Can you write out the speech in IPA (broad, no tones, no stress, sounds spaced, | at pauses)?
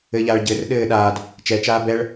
ɘ ʎ aː ɭ ɟ ɘː r ɗ ɘː ɗ aː d | t͡ʃ ɛ t͡ʃ aː b ɛ ɭ